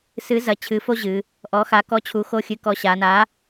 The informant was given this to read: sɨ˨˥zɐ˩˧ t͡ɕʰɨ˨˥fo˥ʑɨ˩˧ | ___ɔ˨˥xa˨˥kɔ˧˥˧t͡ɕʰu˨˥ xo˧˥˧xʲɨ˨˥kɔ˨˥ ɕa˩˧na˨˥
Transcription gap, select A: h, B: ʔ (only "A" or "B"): B